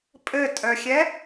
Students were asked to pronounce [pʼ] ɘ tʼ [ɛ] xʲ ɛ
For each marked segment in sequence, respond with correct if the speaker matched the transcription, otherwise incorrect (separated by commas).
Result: correct, incorrect